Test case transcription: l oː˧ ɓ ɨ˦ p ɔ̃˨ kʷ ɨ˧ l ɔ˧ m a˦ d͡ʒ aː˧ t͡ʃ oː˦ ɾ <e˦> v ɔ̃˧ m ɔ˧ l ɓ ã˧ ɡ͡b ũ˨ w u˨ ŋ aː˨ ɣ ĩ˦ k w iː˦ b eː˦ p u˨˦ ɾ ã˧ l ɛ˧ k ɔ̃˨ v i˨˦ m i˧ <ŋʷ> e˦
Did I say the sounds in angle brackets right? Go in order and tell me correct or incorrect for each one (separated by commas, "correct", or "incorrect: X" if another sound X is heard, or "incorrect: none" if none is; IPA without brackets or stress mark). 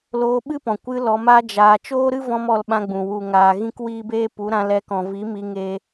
incorrect: ɨ˦, incorrect: ŋ